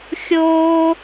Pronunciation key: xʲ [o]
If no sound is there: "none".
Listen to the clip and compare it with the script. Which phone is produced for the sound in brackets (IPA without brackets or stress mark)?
oː